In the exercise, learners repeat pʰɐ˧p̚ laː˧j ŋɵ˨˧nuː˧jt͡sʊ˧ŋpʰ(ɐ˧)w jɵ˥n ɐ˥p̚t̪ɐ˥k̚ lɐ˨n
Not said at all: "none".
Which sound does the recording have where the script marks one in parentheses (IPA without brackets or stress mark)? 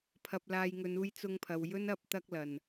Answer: ɐ˨